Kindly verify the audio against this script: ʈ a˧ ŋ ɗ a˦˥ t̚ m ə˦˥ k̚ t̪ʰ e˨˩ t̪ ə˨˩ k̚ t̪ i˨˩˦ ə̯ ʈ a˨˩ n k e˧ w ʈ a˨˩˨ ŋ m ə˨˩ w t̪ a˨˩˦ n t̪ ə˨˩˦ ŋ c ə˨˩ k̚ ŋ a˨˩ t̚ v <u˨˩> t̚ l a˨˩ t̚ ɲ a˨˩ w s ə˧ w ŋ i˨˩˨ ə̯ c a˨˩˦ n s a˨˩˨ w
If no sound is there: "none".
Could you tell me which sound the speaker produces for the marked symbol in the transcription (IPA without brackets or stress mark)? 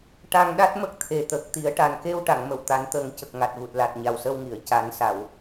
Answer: u˨˩